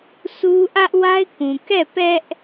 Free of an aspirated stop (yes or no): yes